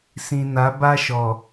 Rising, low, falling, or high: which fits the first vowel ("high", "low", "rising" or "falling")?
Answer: low